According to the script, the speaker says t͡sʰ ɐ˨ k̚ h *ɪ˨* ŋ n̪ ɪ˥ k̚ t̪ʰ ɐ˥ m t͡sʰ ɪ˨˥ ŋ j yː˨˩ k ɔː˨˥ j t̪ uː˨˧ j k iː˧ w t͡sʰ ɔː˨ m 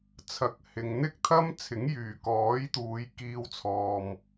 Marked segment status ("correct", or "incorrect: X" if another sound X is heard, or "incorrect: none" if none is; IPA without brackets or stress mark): correct